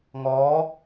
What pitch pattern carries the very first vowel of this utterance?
rising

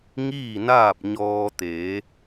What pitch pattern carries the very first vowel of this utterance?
falling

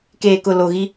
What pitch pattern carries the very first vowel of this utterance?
low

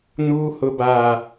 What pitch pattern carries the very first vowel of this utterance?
low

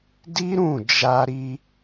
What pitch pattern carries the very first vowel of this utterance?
high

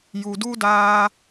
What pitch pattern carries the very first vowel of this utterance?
low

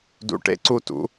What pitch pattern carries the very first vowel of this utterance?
high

